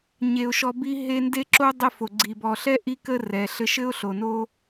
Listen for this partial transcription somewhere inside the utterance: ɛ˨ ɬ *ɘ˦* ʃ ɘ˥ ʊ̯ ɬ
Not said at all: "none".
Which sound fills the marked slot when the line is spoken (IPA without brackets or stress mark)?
ɘ˦